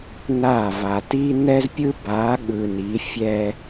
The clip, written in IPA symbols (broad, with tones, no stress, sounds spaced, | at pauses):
n a˦˨ v a˨ t i˦ n ɛ˦ z pʲ ɯ˦ b a˨˦ ɠ ɯ˨ n i˨˦ fʲ ɛ˦